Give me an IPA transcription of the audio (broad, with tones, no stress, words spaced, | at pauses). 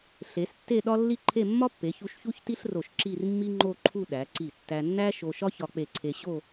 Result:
ɬe˩˧stːe˥˧ ɗɒ˥lːi˥˧ǃʰe˥˧ mːɒ˥pːe˩˧çu˧ʃ çu˥çti˥ɬro˧˩ʃ ǁi˥˧rmːi˥ŋ͡ǃo˥˧ǃʰu˥˧ ɗæ˩˧ǀi˧˩ tːæ˧nːæ˥ ʃo˧ʃɒ˥ çɒ˧k͡pe˧˩ǀʰe˧ɕo˥˧